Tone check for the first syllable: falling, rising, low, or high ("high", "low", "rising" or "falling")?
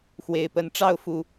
low